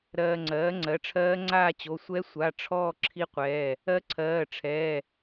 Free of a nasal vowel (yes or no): yes